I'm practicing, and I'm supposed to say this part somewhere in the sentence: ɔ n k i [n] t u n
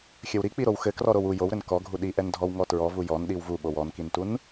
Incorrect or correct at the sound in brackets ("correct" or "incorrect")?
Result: correct